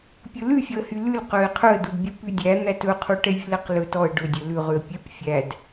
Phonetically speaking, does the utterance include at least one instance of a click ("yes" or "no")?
no